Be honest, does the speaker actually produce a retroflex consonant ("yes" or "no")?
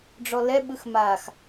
yes